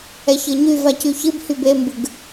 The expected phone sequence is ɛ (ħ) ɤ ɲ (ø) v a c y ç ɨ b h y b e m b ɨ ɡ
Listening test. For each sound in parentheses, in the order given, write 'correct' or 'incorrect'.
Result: incorrect, incorrect

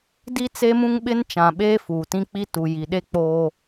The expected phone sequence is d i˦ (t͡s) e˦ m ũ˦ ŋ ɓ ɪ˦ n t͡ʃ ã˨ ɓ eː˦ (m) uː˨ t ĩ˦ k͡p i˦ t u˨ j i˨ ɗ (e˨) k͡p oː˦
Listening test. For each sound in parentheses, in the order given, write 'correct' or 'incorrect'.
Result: correct, incorrect, incorrect

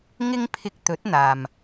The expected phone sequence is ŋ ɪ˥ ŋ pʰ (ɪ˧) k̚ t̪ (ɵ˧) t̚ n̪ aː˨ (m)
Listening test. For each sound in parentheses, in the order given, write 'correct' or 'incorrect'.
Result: correct, incorrect, correct

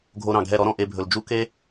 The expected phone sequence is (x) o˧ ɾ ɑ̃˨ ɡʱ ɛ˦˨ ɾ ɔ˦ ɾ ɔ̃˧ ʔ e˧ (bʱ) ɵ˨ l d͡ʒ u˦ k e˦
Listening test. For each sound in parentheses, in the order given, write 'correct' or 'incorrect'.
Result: incorrect, correct

